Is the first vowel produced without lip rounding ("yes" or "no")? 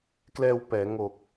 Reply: yes